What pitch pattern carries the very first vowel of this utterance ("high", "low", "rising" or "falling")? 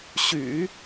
low